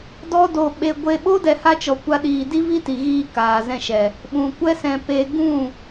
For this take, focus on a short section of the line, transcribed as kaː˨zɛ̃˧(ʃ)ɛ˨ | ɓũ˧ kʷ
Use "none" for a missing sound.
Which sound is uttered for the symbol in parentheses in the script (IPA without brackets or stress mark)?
ʃ